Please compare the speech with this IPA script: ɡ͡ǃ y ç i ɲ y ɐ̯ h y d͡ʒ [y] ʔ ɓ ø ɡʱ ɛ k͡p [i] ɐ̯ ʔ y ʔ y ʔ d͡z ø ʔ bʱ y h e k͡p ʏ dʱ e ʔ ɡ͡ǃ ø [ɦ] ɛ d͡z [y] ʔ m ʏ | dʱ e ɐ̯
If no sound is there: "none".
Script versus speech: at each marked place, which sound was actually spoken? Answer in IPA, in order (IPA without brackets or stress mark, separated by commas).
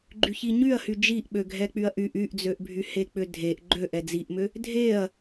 i, y, ʔ, i